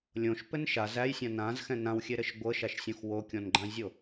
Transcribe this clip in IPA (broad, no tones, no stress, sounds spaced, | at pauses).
lʲ õ ʃ p ɘ n ʃ a z æ j sʲ ã n ã z x ɛ̃ n ã w xʲ e ɾ ɘ ʃ ɡʷ ɤ ʃ a ʃ sʲ õ x w o kʲ ɔ̃ n ɡ͡ǃ ã zʲ o